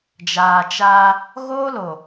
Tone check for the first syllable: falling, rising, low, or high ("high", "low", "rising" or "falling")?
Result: low